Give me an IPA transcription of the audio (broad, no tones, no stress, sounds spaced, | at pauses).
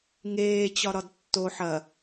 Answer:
ŋ eː t͡ɕ ɒ ɾ ɒ d tː o ħ ɐ